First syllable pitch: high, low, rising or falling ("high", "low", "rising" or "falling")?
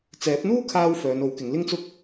rising